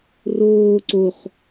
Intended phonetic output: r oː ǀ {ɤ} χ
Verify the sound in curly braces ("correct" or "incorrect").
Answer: incorrect